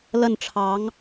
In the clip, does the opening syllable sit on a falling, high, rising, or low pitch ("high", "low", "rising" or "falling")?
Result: falling